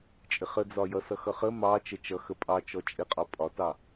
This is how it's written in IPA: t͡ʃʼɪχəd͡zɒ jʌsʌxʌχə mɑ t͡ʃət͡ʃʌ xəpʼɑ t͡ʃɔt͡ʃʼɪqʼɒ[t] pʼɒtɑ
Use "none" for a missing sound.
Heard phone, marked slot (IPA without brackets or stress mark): none